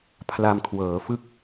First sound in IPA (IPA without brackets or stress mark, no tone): pʰ